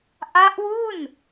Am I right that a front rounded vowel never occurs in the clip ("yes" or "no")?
yes